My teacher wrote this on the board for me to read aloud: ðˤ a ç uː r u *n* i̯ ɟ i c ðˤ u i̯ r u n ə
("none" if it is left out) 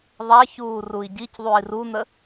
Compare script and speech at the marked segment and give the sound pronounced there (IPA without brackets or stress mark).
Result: none